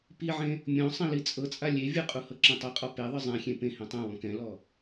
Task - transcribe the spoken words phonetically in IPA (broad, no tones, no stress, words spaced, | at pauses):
piʕẽ | mʲɔ̃ sˤĩlit͡sʼɤt͡sʼa lʲe vʲɯqʼu hɤǁĩtˤɤqʼɔ peðˤɯ zˤẽxʲẽ pẽ hẽtˤɛ̃wɔ̃ kɛ̃lɔ